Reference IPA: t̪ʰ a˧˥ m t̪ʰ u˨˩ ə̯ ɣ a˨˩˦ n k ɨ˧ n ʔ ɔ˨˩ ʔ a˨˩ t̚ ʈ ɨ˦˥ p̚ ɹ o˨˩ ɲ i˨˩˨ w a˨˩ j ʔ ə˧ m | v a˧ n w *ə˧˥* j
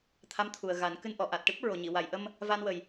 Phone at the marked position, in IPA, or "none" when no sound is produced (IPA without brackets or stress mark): ə˨˩